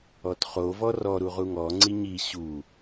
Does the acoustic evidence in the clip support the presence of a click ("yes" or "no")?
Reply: yes